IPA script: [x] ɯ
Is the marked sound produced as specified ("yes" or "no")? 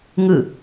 no